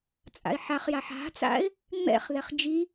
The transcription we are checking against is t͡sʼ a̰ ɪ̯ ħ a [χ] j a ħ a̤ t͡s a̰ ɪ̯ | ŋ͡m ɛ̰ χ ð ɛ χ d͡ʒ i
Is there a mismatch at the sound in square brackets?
no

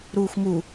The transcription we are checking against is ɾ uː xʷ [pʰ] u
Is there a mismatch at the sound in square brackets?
yes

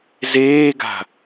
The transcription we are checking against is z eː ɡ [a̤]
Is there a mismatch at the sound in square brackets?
no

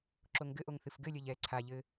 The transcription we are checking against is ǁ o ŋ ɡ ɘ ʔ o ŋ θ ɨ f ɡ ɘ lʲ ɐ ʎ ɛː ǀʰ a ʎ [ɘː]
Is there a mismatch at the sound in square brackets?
no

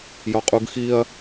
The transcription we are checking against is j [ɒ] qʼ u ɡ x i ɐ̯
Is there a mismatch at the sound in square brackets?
no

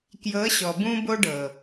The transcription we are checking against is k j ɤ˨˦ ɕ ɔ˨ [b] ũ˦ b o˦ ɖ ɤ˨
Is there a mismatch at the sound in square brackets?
no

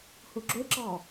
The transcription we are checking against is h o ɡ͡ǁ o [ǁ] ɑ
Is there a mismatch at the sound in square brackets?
no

